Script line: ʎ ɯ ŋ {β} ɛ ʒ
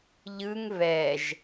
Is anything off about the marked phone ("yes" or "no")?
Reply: no